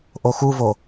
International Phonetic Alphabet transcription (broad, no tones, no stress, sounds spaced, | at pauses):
ʔ o x u v o